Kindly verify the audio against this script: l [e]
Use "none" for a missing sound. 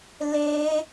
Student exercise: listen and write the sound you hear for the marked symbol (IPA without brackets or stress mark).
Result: e